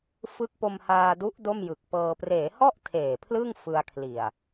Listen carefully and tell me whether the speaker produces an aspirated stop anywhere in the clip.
yes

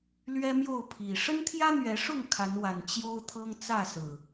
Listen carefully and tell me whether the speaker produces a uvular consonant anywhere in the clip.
no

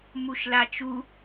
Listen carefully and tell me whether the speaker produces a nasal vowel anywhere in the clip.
no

